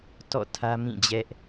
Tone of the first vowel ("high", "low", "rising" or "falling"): falling